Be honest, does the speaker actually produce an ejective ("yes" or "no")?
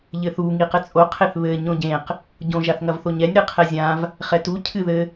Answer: yes